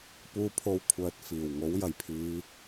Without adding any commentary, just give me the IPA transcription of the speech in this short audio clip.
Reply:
puː˥pʰo˥wkʷʰœː˧t̚ fiː˨˩w ŋo˨˥wjɐ˨˩jpʰiː˨˧

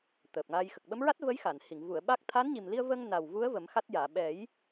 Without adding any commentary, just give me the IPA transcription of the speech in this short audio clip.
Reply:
t̪əː˨˩p̚ŋa˧j xə˨˩k̚ɓə˧˥mɹa˦˥t̚və˧˥j xa˨˩˨nhi˨˩˨ŋ vu˨˩˨ə̯ ɓa˦˥k̚ t̪ʰa˧˥nɲi˨˩mli˧ə̯vəː˧ŋ na˨˩wvu˧˥ə̯ və˨˩˦mxa˦˥t̚jaː˨˩˨ ɓɛ˨˩˦j

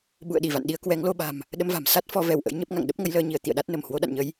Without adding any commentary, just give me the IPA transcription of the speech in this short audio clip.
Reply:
ɓṵ˧˨ə̯ɗi˧˩va̰˧˨n ɗi˧ə̯kwɛ˨˦ŋlo˧ɓa̤˨˩m | ɗə˧mva̤˨˩m sa˦˥t̚fɔ˨˦ vɛ˧˩wʔə̰˧˥jɲə˦˥p̚ŋa̰˧˨ŋ ɗə˦˥p̚ŋə˧jləː˧ɲi˧˩ə̯ t̪ḭ˧˨ə̯ɗa˦˥t̚nə˧˩m hwo˨˦ɗa̰˧˨nɲə˨˦j

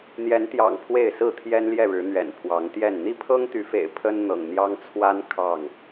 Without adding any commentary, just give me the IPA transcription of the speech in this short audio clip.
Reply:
n̪jɛ˨˦nt̪jɑ̰˨˩ŋ pʰwe˥˨ɪ̯sɹ̩˥˨t̪ʰjɛ˦nljɛ˥˨ ɻɻ̩˨˦n̪ɥɛ̰˨˩n pʰwɑ˨˦ŋt̪jɛ˥˨n n̪i˥˨pʰɤ˦ŋt̪y˨˦fḛ˨˩ɪ̯ pʰə˦n n̪ɤ̰˨˩ŋn̪jɑ˦ŋ t͡sʰwa˦n kʰɑ˥˨ŋ

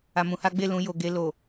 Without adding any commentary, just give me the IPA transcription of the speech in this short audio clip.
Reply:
a˧mũ˧ha˦ ɡ͡be˦˨lũ˧ jo˨ɡe˧ lo˨

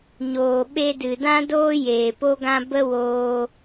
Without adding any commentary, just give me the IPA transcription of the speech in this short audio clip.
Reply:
ɲoː˨ɓe˧dɨ˨ dã˦doː˦ jeː˨po˦ɡã˦ bə˦woː˧

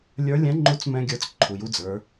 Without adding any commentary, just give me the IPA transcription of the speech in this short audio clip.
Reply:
lʲə˞˧˥ lʲɛ̃˧˥ŋ͡ǃu˧˥t͡smɛ̃˧ ɡʲə˞˧˥t͡s ǃʰu˩ju˧ d͡zə˞˩˧

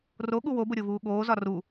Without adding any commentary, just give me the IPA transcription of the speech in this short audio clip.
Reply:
ro ɠuwobʊ ɾʲovuːɠoːzɒ ru

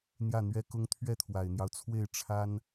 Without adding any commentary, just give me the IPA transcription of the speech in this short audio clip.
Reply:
n̪jä˥˩n̪ɥɛ˥kʊ˥ŋ t̪ʰɥɛ˥˩t̪ʰwa˨˩ɪ̯n̪jɑ˦ʊ̯t͡sʰwe˥˩ɪ̯ ʈ͡ʂʰa˥n

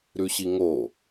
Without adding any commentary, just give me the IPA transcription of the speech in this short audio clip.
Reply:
ɾʉɕiŋo

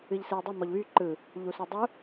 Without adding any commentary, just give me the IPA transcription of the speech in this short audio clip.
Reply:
ɨʎsɨə̯dˤɨ mɔʎβy ǃɯ | ʎusydˤu

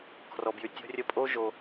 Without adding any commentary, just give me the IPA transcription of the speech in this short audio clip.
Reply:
kʰrɔ˨bjy˨tʲo̤˦rʲə˦ pʼo˦ʒo˨

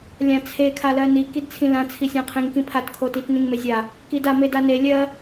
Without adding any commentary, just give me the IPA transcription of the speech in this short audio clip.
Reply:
lʲãt͡sʰe kʰalɜni kidt͡sʰĩlã t͡sʰisʲãqʰĩŋ kĩpʰat kʰotit nĩŋmezʲa | kida medane lʲɜ

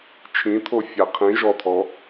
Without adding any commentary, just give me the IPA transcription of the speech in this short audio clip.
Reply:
t͡ʃʰĩt̪ʰo fʲaqʰĩ ʒɔt̪ʰɔ

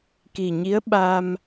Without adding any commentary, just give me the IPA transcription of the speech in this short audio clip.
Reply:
ki˨˩ɲi˧˥ə̯ɓa˧m

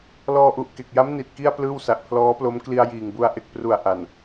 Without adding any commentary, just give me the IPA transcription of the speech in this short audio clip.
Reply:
lɔː˧ʔu˨˩ʔ ke˨˩k̚ja˦˥m ni˨˩t̚ki˥˩a̯plɯː˥˩w sa˨˩ʔpʰlɔː˦˥plo˦˥m kli˧a̯jiː˨˩ŋbu˧a̯ ʔe˨˩k̚pru˨˩a̯ ʔa˨˩n

